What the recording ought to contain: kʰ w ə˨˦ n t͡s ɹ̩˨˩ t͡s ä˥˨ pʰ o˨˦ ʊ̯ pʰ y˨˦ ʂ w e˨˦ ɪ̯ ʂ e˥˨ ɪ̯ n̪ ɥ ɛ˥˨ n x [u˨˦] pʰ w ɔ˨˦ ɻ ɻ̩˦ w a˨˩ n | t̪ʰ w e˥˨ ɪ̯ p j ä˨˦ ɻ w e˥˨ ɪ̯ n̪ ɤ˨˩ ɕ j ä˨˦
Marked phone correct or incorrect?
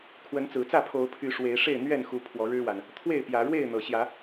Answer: correct